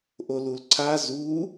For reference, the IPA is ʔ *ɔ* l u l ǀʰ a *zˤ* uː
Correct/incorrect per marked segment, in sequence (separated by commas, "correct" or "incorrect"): incorrect, incorrect